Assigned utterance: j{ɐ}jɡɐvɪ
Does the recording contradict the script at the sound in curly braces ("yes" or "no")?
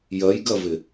no